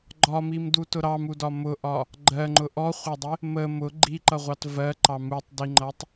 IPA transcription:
ɡ͡ǃ ɒ m i m d u t ʊ ɾ ɑ m u d ɒ m ʊ ʔ ɒ | ɡ͡ǃ ɜ ŋ͡ǃ ʊ ʔ ɔ χʷ ɑ dˤ ɪ | m ə m ʊ ɡ͡ǃ i ǃ ʌ ʁʷ ɑ t v ɜ ǃ ɑ m u tˤ d i ŋ͡ǃ ʌ tˤ

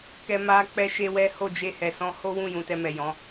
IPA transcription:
k ɛ˧ m a˧ k͡p ɛ˦ ʃ e˦ w ɛ˦ h o˦˨ d͡ʒ e˧ h ɛ˨ s ɔ̃˧ h o˦ w ũ˦˨ j ũ˧ t ɛ˧ m ɛ˨ j ɔ̃˨˦

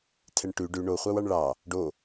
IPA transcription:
tʰ ɛ ɳ ʈ ʉ ɖ ʉ ɳ o χʷ ɑ w ɑ ɳ ɭ ɑ | ɖ o

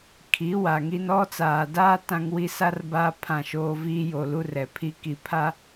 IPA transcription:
kʰ i˨˦ w a˨ ŋ i˦ n ɔ˦ t͡s aː˨ d aː˦ t ã˦ ŋ w i˦ s a˦ r b aː˦ pʰ ã˦˨ ʃ oː˦ v iː˦ j o˨ l u˦ r ɛ˨ pʰ i˦ k i˨ pʰ a˦

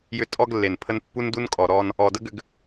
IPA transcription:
j ʏ˦ tʼ ɔ˦ ɡ lː e˨ n pʰ ə˦ n pː u˦ n d u˦ n kʼ ɔ˨ ɾ ɔ˦ n | ɔ˨ d ə˦ ɡ ʏ˨ ɡ

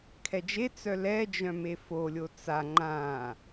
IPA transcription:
kʰ ɛ d͡ʒ e t͡s œ l ɛ d͡ʒ œ̃ m e f o lʲ o t͡s a ŋ͡ǃ ã

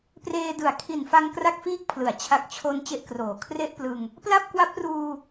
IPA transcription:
p r eː˧ d ɯ˩˦ a̯ kʰ i˨˩ n f a˧ ŋ k r a˥˩ k̚ f iː˥˩ k̚ pʰ l ɯ˩˦ a̯ t͡ɕʰ a˨˩ k̚ t͡ɕʰ o˧ n t͡ɕ e˥˩ ʔ k r oː˩˦ kʰ r e˥˩ ʔ p l ɯ˧ ŋ | p l a˥˩ p̚ k w a˦˥ p̚ r uː˧

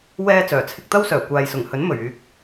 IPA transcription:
w ɛː˧ t͡s œː˨˩ t͡sʰ ɪ˧ k̚ t̪ ɐ˥ w s œː˨˩ kʷ aː˨ j s ʊ˨˩ ŋ h ɵ˨˥ n m ɵ˨˩ ɥ yː˨ k̚

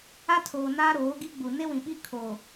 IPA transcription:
a˦ tʰ oː˨ n aː˦ ɾ oː˨˦ ɡ i˦ ɡ͡b u˨ n e˦ w ĩ˨ ɓ i˦ kʰ oː˨

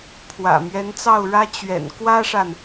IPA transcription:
pʰ w ä̰˨˩ m ɥ ɛ˧˥ n t͡s ɑ˥˩ ʊ̯ ɻ ä˥ t͡ɕ ɥ ɛ̰˨˩ n k w ä˥ ʂ a˨ n

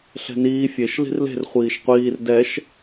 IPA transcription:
ɬ ɛ̤ n iː fʲ e ʃ l i̤ r l e̤ r χʷ iː ʃ qʷ iː r d ɛ ʃ

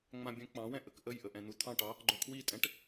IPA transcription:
ŋ͡m ã bʲ œ̃ k͡p ɑ̃ w ɛ̃ ʔ ə k ʔ ə j ʔ ə ʔ ɛ̃ n̪ u t̪ʰ ɑ̃ ʈ ɑ | ɡ͡ǃ œ kʰ w i tʼ ɛ̃ ʈ

